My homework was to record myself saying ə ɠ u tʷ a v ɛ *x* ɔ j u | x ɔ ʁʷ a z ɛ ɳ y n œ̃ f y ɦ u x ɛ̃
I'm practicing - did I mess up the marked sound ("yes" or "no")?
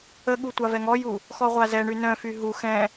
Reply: yes